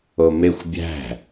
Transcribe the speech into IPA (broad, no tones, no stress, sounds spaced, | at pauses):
o m e xʷ bʲ æ̤